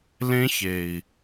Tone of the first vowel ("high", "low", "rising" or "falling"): high